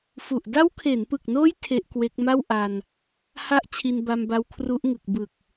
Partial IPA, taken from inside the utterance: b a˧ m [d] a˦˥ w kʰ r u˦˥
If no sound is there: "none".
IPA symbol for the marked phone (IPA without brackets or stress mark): b